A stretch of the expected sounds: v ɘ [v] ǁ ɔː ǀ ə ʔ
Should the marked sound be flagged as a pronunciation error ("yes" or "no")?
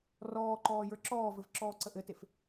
no